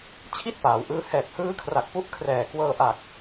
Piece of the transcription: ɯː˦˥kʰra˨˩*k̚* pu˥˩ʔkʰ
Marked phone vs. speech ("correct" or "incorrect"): correct